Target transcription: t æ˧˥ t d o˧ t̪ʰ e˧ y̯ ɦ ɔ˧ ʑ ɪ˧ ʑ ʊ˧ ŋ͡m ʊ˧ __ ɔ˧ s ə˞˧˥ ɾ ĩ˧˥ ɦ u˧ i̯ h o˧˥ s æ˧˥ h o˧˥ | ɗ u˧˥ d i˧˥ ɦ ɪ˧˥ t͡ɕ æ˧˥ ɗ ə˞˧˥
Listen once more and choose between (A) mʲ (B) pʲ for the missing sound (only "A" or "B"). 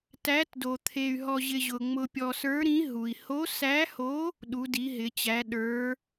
B